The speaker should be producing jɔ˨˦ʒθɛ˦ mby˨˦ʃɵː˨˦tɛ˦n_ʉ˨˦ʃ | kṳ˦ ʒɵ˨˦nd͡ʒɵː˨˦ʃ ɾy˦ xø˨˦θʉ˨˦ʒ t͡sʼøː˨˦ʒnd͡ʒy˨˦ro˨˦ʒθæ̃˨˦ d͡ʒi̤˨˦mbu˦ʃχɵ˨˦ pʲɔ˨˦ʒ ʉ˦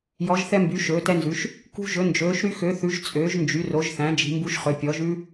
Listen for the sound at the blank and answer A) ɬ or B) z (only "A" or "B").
B